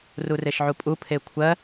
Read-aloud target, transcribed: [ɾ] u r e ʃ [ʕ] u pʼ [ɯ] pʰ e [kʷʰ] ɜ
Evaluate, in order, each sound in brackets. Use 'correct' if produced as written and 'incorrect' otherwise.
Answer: incorrect, correct, incorrect, correct

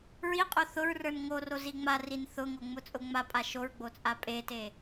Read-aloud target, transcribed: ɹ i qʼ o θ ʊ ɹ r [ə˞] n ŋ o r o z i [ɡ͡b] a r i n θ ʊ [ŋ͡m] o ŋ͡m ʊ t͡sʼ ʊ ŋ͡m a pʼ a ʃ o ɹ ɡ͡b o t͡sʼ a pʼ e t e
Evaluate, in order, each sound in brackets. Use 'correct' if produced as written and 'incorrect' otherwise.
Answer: correct, incorrect, incorrect

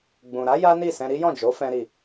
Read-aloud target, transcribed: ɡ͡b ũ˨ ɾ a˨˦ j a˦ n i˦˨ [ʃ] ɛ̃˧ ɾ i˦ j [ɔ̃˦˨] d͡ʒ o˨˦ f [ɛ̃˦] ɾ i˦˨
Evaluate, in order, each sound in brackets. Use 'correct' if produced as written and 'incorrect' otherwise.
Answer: incorrect, correct, correct

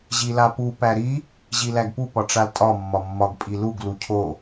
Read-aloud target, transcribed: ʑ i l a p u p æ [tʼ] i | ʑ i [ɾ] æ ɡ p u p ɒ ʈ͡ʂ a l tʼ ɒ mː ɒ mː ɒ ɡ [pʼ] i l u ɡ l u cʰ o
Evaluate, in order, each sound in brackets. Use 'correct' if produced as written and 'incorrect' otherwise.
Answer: incorrect, incorrect, correct

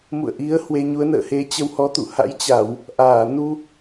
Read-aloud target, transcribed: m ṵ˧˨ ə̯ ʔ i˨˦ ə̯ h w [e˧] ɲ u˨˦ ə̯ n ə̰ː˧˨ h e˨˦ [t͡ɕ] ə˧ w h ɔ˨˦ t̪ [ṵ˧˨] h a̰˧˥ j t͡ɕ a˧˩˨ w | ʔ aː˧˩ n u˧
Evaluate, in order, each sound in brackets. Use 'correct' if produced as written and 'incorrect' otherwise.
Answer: correct, correct, correct

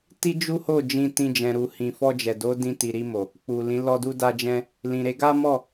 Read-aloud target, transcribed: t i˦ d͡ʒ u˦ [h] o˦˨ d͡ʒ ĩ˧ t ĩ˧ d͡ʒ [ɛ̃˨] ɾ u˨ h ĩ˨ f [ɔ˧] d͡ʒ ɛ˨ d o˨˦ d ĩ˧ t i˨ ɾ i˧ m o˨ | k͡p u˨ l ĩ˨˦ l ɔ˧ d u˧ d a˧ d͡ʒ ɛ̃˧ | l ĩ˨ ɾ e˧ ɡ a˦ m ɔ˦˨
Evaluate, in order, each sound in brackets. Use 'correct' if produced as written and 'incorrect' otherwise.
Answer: correct, correct, correct

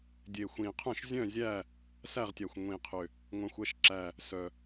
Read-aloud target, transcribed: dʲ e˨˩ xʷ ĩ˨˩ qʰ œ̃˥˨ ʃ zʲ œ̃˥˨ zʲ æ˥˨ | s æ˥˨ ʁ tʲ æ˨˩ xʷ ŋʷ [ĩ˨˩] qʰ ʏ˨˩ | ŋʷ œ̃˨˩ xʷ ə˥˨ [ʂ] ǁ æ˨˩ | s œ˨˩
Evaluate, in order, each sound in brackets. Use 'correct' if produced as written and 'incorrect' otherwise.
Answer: correct, incorrect

